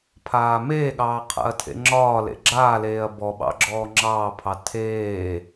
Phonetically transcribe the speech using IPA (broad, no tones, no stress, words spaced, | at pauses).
pʰaːmeːɠɑː qʰa̰ɐ̯tʰḛŋ͡ǁɒːlḛ ɡ͡ǁaːleːɐ̯ bɔɓɑ̰ ɡ͡ǁɔːŋ͡ǁɑːpʰɑ tʰeː